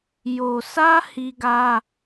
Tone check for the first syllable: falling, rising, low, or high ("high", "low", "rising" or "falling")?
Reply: low